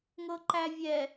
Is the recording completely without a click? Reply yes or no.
no